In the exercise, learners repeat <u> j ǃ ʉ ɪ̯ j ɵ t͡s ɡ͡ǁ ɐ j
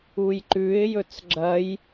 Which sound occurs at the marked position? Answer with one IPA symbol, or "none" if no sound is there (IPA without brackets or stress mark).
u